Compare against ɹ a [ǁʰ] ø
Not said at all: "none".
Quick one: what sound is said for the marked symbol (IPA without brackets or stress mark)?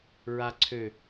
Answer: ǀʰ